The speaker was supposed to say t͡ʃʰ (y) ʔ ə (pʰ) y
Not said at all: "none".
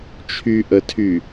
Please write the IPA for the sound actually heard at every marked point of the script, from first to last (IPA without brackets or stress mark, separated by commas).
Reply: y, tʰ